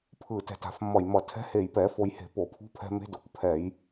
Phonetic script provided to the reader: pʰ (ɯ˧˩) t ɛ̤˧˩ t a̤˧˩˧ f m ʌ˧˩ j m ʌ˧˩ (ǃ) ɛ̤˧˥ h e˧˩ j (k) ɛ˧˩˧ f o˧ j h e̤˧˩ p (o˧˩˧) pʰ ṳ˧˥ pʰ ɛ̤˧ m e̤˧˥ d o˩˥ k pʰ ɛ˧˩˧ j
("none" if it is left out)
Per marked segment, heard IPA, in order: ɯ˧˩, tʰ, p, o˧˩˧

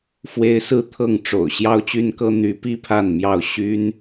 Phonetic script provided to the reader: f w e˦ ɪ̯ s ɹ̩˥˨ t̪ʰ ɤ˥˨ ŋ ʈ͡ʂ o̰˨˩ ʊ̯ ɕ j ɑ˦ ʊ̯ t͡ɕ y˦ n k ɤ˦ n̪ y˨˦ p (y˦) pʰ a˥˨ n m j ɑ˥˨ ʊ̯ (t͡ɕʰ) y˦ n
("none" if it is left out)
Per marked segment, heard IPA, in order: i˦, ɕ

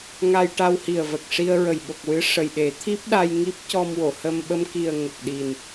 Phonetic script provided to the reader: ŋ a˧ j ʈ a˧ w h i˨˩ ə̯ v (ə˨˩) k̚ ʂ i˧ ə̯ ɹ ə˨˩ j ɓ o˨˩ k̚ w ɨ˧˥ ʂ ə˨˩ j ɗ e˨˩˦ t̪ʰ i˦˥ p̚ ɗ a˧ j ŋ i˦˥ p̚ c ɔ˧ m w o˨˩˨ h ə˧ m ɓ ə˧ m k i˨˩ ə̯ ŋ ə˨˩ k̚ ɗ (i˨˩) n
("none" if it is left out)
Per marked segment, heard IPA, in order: ə˨˩, i˨˩

